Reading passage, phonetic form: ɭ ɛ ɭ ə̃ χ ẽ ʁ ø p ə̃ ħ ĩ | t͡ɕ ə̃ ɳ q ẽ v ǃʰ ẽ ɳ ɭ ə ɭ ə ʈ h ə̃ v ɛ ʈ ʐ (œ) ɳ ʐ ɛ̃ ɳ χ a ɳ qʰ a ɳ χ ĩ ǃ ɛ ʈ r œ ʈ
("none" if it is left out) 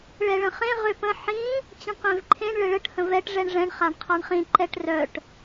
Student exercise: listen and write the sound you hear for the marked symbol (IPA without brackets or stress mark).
ɛ